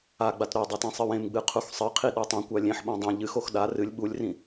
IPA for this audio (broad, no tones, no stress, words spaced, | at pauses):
aɡ͡bat ɾodˤat ẽsˤɨwẽmɡ͡bɨ qʰuxsˤɨqʰi ɗotˤõkʷa lʲẽħɓõ dˤẽ ʎɨxox ɗa rɨlʲ ɓulʲrĩ